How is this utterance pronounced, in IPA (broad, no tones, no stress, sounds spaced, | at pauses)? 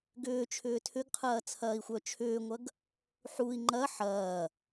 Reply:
ɡ ʏː t͡ʃʰ ʏː tʰ ʏ ɡ qʰ ɐː t͡sʰ ɐː i̯ xʷ œ t͡ʃʰ ʏː ŋʷ ɐ ɡ | ħ u i̯ ŋ͡ǃ ɐ ħ ɐː